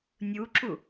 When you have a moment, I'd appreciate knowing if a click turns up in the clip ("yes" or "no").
yes